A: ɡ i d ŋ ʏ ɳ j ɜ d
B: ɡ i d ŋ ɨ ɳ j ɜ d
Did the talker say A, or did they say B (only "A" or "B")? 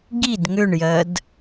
A